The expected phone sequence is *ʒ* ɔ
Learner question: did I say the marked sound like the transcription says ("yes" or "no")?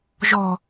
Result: yes